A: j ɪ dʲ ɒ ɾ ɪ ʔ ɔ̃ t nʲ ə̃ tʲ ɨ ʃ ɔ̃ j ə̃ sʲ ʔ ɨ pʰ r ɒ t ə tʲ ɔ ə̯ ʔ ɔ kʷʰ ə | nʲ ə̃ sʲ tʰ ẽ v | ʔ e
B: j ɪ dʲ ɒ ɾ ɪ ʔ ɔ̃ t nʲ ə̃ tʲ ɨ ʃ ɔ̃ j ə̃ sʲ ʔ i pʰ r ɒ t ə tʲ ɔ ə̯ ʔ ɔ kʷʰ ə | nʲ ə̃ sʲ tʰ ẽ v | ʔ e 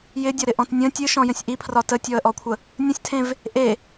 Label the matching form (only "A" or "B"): B